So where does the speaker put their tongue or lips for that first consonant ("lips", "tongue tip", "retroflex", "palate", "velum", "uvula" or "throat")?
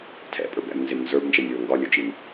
tongue tip